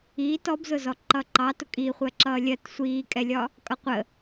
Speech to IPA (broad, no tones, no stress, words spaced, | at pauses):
iːt ɔbzʊzɔ ǃʌǃɑ tʊkʼiχʷɜ ǁʌːlʲɜt sʷiːkʼɛlʲɒ | kʼʌqʷə